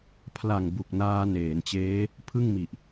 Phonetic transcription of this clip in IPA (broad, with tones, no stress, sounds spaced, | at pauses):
pʰ l a˨˩ ŋ b u˨˩ k̚ n aː˧ n eː˩˦ n t͡ɕ eː˦˥ | pʰ ɯ˥˩ ŋ m i˨˩ ʔ